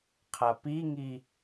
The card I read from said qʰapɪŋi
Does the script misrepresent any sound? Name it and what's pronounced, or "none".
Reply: ɪ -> i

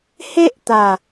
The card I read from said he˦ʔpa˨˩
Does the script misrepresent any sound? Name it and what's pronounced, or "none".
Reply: p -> t̪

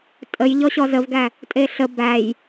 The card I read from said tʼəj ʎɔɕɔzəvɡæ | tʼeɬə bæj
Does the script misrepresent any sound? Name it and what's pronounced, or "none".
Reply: none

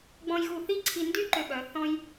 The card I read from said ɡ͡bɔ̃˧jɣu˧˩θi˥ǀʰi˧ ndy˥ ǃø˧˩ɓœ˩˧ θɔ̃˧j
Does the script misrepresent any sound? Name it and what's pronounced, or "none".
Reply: none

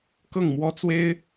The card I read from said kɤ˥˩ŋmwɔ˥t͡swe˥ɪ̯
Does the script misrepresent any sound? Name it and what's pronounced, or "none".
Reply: none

